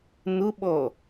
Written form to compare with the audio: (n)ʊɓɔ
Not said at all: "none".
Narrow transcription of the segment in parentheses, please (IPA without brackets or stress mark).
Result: n